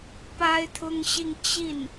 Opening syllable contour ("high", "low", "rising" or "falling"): high